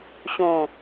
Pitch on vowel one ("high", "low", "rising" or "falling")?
low